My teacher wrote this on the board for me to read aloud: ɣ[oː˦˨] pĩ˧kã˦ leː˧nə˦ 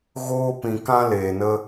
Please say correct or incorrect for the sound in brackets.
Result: incorrect